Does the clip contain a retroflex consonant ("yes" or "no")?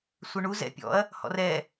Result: yes